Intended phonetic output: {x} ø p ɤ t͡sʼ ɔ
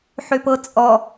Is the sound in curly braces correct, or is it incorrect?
incorrect